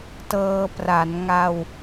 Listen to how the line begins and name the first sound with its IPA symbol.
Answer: t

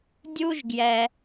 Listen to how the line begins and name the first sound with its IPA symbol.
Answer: dʲ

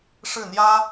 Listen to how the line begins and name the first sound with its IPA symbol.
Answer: ʂ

